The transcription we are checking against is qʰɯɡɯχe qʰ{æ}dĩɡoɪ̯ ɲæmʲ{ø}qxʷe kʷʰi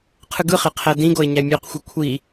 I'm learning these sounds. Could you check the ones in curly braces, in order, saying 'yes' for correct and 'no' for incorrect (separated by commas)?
yes, yes